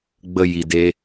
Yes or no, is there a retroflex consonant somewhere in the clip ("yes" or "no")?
no